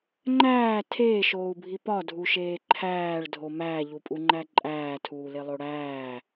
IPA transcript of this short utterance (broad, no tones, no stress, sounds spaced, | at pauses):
ŋ͡ǃ æː tʰ eː ʃ oː u̯ bʱ i p ɒ dʱ u ʃ eː ǃʰ æː ɭ dʱ o m æː ʎ u pʼ u ŋ͡ǃ æ ǃʼ æː tʰ uː l e lˠ o ɽ æː